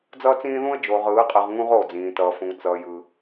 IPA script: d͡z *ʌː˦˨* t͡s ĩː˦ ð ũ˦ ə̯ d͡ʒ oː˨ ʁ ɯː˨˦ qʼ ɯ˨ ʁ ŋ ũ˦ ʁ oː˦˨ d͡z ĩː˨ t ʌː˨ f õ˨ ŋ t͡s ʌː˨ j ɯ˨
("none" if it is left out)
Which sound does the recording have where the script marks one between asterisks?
ʌː˦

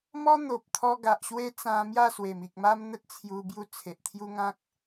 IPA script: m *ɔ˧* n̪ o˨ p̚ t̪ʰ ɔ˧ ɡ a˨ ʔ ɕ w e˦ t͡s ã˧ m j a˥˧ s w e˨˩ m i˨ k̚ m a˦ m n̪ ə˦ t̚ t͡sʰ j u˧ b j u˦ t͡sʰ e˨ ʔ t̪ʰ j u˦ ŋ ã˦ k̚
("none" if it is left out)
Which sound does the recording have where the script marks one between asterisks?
ɔ˦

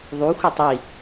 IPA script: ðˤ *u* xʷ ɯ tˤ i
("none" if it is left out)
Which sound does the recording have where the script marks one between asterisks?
u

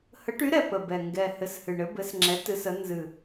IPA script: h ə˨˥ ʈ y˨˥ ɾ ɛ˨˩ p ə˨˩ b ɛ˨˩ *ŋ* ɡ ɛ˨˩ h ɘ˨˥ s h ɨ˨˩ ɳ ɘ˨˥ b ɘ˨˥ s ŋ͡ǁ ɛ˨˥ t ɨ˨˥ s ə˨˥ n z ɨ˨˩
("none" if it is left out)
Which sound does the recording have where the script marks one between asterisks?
ŋ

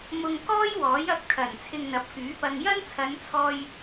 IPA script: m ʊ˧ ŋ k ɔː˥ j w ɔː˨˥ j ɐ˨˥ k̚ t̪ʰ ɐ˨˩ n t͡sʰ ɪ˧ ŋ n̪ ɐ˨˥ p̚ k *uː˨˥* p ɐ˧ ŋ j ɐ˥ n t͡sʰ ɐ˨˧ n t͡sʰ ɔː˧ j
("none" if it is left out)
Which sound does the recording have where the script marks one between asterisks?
yː˨˥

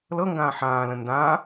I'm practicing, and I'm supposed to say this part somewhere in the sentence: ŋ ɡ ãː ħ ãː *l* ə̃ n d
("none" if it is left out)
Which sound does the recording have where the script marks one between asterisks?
l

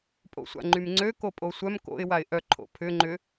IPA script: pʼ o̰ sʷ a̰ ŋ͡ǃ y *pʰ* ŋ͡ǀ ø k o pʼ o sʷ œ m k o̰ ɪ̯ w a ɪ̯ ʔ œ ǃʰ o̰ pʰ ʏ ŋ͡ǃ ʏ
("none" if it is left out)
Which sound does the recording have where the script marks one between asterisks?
m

